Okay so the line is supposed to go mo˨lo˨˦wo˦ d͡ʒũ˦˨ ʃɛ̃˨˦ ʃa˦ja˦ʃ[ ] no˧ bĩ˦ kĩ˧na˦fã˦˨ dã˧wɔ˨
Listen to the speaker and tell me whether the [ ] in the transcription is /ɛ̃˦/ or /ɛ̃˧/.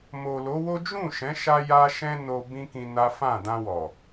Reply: ɛ̃˦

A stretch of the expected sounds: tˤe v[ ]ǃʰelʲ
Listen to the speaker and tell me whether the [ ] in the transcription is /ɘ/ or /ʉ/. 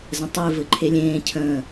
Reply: ɘ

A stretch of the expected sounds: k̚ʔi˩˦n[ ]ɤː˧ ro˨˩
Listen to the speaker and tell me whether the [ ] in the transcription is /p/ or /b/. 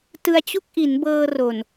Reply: b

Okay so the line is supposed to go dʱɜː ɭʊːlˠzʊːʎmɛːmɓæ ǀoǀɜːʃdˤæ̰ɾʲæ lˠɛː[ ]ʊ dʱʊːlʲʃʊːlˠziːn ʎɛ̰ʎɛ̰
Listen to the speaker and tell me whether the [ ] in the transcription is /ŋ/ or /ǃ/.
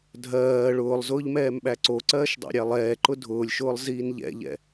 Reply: ǃ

